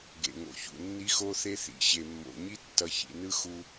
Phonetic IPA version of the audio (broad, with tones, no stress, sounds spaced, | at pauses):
ɡ ḛ˨ ŋ o̰˨ ç ṵ˨ nː i˦ x o˦ θ e˦ θ ḭ˨ ɕ e˨ mː o̰˨ ɲ i˦ tː ʌ˨ ç ḭ˨ n ɯ˦ x u˦